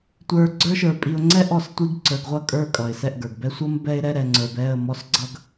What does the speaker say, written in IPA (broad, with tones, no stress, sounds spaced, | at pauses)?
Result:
tʷ ə˞˨ ɡ͡ǀ ə˞˦ ʃ ə˞˨ pʼ i˨ ʊ̯ ŋ͡ǀ ɛ˦ ʔ ɔ˦˨ s tʷ i˦ ɡ ǀ ə˞˨ ɡ ʁʷ ʌ˦˨ kʼ ə˞˦˨ kʼ ʌ˨ ɪ̯ s ɛ˦˨ ʔ ɡ ə˞˨ ɡ b ɛ˦ sʷ ʌ˦ m b ɛ˦ ɪ̯ ɾ ɛ˦ ɾ ɛ˨ ŋ͡ǀ ə˞˨ b ɛ˦˨ ə̯ m ɔ˦ s ɡ͡ǀ ʌ˦ ɡ